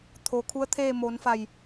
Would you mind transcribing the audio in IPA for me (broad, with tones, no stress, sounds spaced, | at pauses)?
t̪ʰ o˩˧ kʰ u˧˥ ə̯ t̪ʰ eː˥˨ m oː˩˧ n f a˧˩ j